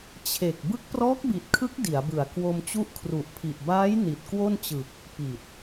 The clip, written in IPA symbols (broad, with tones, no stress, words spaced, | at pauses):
t͡ɕʰe˨˩k̚ bɯ˦˥k̚prɔː˦˥k̚bi˨˩t̚kʰɯ˦˥k̚ di˩˦a̯bɯ˨˩a̯ kwo˧mt͡ɕu˦˥ʔkʰru˨˩ʔpʰi˨˩ʔ baː˦˥j ni˨˩t̚kwo˥˩nt͡ɕɯ˨˩k̚ | pi˨˩t̚